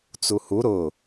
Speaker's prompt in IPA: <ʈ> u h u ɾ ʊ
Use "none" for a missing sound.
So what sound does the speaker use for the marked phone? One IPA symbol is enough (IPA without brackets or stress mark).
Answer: t͡s